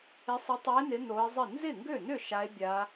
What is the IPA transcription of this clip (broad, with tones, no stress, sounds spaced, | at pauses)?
ɪ˧˥ sˤ ɪ˧˥ tˤ ɛ˧˥ e̯ n ɪ˧˥ n o˧˥ e̯ zˤ ɪ˥˩ n z ɪ˥˩ ŋ ɡ ø˥˩ n ʏ˥˩ ʃ a˧˥ e̯ bʲ a˧˥